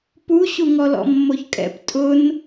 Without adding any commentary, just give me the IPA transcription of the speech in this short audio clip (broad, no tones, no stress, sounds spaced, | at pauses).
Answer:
p u ɕ u ŋ ɔ l ɔ̰ mː o ç kʼ ɛ̰ p tʼ ʊ n